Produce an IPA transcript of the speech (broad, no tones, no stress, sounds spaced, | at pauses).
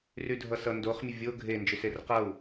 r y dʱ ʌ s ʌ n d o χ mʲ ə vʲ o ɡʱ e n d͡ʒ y s e r q ʌ u̯